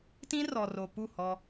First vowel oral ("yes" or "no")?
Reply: no